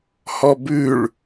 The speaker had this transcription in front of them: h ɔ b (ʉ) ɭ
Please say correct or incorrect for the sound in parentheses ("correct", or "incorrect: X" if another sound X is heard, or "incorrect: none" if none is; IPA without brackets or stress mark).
correct